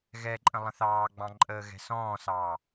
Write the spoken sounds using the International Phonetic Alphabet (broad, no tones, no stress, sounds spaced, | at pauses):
ɣ ɛ ǃʼ ə̃ lˠ ə̃ θ ɑː ɡ͡b ɑ̃ ǃʼ əː ɣ ɛ̤ s ɔ̃ː s ɑː